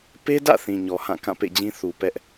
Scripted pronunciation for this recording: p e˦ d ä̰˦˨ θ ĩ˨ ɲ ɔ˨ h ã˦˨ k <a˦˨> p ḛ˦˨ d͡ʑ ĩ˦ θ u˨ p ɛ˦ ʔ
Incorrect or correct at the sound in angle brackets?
incorrect: ã˦˨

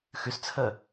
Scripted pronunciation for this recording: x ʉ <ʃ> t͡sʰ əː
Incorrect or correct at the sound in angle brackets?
incorrect: s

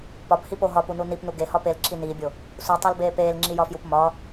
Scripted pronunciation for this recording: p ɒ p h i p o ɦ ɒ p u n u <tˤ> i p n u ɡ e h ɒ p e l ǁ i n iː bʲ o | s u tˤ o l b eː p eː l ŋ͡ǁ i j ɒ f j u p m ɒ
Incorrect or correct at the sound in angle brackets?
incorrect: n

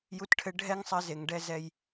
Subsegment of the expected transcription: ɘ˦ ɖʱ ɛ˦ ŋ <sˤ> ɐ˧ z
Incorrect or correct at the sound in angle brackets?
correct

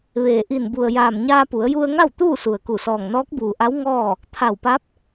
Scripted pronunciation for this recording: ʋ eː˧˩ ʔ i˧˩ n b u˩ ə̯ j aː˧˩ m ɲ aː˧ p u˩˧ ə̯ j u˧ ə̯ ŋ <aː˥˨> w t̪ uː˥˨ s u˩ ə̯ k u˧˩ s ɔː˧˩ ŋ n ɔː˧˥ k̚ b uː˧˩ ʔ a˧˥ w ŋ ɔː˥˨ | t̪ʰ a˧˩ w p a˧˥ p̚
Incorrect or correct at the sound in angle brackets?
incorrect: a˥˨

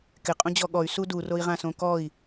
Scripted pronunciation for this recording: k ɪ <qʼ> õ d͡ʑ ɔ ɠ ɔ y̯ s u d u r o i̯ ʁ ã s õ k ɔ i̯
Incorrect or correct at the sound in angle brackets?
correct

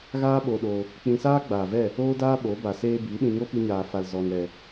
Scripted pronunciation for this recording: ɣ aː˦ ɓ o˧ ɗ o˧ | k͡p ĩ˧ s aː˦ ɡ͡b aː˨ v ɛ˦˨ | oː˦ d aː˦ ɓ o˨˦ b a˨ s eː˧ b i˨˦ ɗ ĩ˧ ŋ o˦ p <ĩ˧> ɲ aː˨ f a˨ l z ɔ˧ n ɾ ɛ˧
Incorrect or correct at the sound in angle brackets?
incorrect: i˧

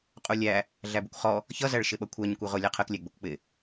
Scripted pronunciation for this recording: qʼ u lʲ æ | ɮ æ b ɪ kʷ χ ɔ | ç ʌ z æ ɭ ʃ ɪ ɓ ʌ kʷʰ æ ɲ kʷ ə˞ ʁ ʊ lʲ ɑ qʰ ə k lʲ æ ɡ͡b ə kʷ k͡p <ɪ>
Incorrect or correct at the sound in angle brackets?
correct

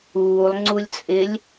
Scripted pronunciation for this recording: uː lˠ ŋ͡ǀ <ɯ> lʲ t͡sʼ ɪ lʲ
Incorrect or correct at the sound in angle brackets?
incorrect: u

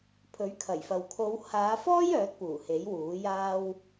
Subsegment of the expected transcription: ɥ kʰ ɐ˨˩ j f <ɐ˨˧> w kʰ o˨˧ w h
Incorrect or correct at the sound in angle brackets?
incorrect: ɐ˨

